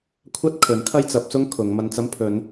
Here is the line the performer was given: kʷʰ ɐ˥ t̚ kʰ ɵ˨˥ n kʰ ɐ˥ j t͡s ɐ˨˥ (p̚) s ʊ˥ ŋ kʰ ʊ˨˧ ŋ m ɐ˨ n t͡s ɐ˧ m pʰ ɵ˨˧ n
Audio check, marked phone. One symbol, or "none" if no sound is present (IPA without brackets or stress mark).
p̚